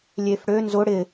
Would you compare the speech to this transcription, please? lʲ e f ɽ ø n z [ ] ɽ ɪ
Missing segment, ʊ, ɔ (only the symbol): ʊ